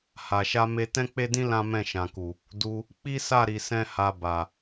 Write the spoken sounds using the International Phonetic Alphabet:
h a˨ ʃ a˧ m e˧ t ɛ̃˦ k͡p e˦ d ĩ˦ l ã˦ m ɛ̃˦˨ ʃ ã˨ k u˨ | d u˧ | k͡p i˦ s a˦˨ ɾ i˨ s ɛ̃˧ h a˧ b a˨

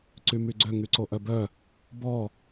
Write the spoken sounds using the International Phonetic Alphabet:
ǀ y m y ɡ͡ǀ ø ŋ y ǀ o ʔ œ b œ | b ɔ

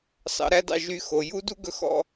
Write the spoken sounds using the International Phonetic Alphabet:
s ɑ̰˧ ɾ æ˦ d ɑ̰˧ ʒ y˧ x o˨ j u˦ d u˦ ɡ ɵ˧ x ɔ̰˧

